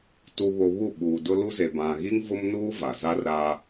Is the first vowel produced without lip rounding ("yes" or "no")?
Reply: no